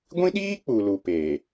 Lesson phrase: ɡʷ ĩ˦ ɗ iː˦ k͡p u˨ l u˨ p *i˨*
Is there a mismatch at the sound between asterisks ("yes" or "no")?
yes